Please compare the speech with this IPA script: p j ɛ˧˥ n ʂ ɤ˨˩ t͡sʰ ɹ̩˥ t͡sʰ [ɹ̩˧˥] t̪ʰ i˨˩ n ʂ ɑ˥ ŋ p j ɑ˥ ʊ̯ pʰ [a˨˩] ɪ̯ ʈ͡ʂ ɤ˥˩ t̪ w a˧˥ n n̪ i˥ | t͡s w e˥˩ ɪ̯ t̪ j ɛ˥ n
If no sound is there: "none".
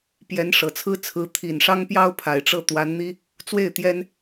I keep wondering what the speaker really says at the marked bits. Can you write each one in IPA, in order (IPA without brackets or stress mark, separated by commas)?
ɹ̩˧˥, a˨˩